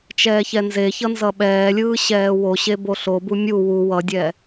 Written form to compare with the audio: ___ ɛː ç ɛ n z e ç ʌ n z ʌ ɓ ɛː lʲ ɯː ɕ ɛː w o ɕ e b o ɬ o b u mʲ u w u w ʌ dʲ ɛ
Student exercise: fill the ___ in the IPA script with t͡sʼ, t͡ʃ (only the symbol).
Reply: t͡ʃ